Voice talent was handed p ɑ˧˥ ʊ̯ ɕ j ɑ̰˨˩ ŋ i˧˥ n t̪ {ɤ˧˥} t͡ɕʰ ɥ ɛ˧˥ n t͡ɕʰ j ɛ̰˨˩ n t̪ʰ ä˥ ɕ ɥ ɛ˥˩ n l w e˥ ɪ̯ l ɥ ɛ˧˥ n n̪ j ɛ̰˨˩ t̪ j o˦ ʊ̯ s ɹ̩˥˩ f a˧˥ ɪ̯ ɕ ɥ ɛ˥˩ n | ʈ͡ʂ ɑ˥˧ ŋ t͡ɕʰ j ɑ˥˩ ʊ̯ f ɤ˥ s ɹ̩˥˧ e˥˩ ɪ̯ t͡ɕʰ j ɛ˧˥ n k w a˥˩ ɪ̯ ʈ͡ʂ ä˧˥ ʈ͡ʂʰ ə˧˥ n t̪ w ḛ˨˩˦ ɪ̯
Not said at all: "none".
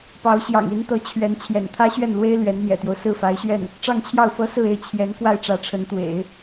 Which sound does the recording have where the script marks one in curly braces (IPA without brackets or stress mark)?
ɤ˧˥